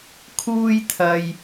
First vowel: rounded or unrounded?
rounded